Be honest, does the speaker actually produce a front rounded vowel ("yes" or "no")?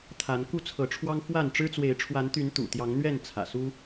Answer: yes